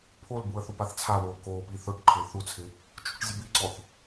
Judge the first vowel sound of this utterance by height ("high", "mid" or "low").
mid